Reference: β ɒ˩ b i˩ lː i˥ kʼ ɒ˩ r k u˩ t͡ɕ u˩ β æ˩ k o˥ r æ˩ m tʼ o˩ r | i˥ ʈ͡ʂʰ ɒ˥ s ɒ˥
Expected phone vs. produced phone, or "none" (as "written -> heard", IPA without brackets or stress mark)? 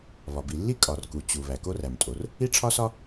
none